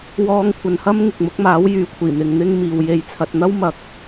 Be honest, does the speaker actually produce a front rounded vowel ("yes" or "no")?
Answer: yes